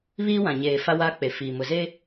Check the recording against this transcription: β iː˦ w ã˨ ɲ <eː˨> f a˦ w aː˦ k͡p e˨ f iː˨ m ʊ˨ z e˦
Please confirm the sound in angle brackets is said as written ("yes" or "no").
yes